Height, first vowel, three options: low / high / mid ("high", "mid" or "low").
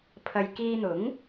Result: low